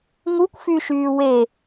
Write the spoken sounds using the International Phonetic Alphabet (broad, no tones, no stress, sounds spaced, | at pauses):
ŋ u kʷ f y ʃ yː w e